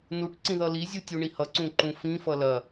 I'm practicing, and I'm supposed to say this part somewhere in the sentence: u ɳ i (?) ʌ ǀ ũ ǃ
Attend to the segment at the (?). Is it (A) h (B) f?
A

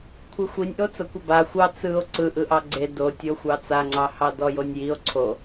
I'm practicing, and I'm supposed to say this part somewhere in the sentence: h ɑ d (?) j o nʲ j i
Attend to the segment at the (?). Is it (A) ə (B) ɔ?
B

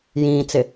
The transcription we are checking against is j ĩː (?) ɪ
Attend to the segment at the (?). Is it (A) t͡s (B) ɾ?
A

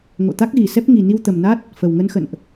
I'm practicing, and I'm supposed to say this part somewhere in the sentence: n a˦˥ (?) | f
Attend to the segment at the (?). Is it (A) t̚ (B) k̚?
A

